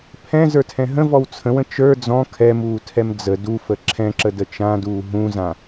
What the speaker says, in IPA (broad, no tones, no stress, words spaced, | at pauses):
pʰɛ̃zə˞tʰɛ̃ ɦə̃vɔw t͡sʰə̃wə̃ t͡ʃə˞ d͡zɔ̃ kʰɛmuːtʰɛm d͡zə dufə ǁʰɛ̃ǁədə t͡ʃãduː ɦũzã